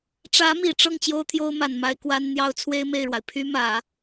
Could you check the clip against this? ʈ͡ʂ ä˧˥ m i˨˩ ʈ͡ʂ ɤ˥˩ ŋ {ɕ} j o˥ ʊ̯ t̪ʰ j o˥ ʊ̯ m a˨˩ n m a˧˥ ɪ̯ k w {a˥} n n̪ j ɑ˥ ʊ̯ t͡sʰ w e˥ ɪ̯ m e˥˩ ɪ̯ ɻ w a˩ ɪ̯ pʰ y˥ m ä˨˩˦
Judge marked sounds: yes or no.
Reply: no, yes

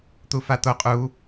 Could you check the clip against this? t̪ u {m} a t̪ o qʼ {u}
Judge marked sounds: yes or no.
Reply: no, yes

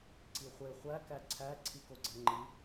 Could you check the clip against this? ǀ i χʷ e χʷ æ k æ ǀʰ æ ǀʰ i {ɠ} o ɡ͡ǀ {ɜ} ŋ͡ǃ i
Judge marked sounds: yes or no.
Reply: no, no

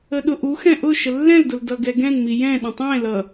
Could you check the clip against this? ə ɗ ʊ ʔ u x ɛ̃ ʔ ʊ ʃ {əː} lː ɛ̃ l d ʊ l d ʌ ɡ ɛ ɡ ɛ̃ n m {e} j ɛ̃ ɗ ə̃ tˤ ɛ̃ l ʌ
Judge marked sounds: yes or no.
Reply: no, no

